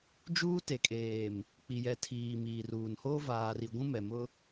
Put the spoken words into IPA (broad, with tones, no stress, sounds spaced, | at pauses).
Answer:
d͡ʒ uː˦ t e˨ kʼ eː˨ m | k͡p i˨ j ɛ˨ tʰ iː˨ m iː˨ r uː˨ n h oː˦ v aː˦ r i˦ ɡʷ ũ˦ m ɛ˨ m ʊ˦